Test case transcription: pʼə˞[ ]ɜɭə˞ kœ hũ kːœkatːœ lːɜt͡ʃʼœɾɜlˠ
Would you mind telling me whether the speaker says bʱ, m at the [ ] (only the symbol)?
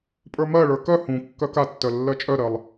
m